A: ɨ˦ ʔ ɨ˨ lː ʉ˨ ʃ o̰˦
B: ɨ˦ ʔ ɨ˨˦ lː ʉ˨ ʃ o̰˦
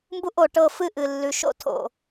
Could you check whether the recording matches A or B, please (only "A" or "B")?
A